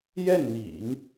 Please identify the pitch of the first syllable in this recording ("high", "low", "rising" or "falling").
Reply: falling